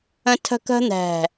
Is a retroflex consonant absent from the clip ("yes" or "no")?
yes